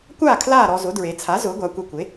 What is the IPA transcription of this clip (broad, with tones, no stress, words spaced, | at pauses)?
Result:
kʷaː˥˨ kʰlaː˥˨ɾɔ˧zʊ˩˥ dɹe˩˧t͡sʰa˩˥ zʊː˩˥ɡʷa˩˧ kʷe˧kʷe˩˥